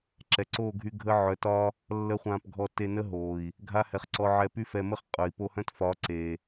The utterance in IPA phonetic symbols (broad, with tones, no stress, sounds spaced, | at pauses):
ǁ ɛ˨ ǀ oː˦˨ ɡʱ y˧ ɡʱ ə˦ ʕ œ˨ t ɒ˧ | lː ə˦ χʷ ãː˧ p ɡʱ ɔ˧ t e˧ n ə˦ ɦ oː˨ i̯ | ɡʱ a˦ h ɛ˧ χ ǀ ɔ˧ ʕ ɛ˧ p y˦ f ɛ˧ m ə˦ χ qʼ œ˨ i̯ p o˧ h œ̃˦ t f ɒ˨˦ ǀ e˨